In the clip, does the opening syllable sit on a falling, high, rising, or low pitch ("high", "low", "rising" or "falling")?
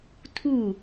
falling